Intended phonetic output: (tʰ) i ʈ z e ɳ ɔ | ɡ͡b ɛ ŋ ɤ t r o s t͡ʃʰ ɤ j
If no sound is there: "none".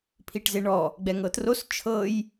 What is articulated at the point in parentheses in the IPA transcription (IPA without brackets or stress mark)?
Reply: pʰ